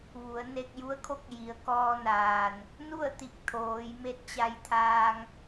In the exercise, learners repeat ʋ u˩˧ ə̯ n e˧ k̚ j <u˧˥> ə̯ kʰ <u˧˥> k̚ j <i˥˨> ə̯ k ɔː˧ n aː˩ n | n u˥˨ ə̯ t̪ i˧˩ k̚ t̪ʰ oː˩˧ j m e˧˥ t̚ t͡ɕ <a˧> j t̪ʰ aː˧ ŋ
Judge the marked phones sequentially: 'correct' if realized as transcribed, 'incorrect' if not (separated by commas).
correct, incorrect, incorrect, correct